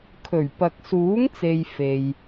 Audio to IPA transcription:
kʰ ɵ˨˩ ɥ p ɐ˨ k̚ s uː˨˥ ŋ t͡s e˨ j f e˨ j

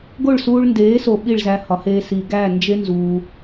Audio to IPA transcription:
ɡ o˦˨ ɭ s uː˧ ɭ n d eː˨˦ s o˨ ɓ i˦˨ ɭ z æ˧ h ɒ˨˦ h eː˧ s i˨ ɡ æː˦˨ n d͡ʒ e˦ n z uː˧

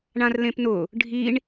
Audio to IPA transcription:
ɳ ã r l ẽ p n ʊ | ɖʱ i ɳ

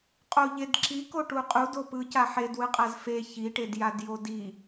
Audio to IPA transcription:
qʼ o ʎ e d ǁ i k o ʈ u qʼ u d o p ɯ c a ħ e d w ɯ qʼ a z f e ç i ʈ e d j a d j o d i

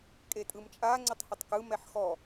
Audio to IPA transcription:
kʼ e tʼ ɯ m t͡ʃʼ a ŋ͡ǀ ɯ tˤ h u tˤ k ɯ m ɛ ħ x ɔ

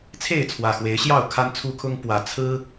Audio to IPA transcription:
t͡sʰ e˥˨ ɪ̯ t͡sʰ w ä˨˩ x w e˨˦ ɪ̯ ɕ j ɑ˥˨ ʊ̯ kʰ a˦ n t͡sʰ u˦ kʰ ʊ˦ ŋ p w ä˨˩ t͡sʰ ɹ̩˦

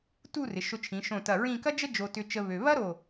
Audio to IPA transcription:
t u˥˧ r ɪ˩˧ ʃ ʊ˧ t͡ʃʰ ĩ˩˧ ʃ õ˧˩ t ɐ˧˩ ɹ ĩ˥˧ k ɐ˥ d͡ʒ ə˥ d͡ʒ o˧ t ʏ˧ t͡ʃ ə˧ β ø˧ β ɐ˥ ɾ o˧˩

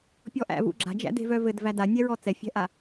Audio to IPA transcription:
pʲ ɔ ʔ æ̰ v ṵ ɡ͡ǁ a̤ d͡ʒ æ̰ d e̤ v œ v ɘ d v æ d a nʲ ɛ ɹ ɔ t͡s ɛ fʲ ɛ̤ ʔ a

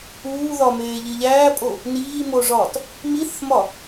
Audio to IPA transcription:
uː ð ɒ m eː ʎ i ʎ æː pʼ o | n iː m o ʐ ɒː t | m i θ m ɒ

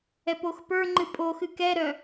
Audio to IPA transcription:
ɛ p o x p ə˞ ŋ͡ǃ ɨ pʼ o x ɨ k ɛ ɾ œ

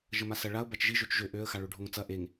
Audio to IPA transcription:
ʒ ə m a s ɐ ɭ a ʊ̯ b a t͡ʃ ʒ i ʒ ø t͡ʃ ʒ ø ʔ ø ə̯ x a ɭ ɵ ɖʱ o ŋ t͡s ɐ ʔ e ŋ

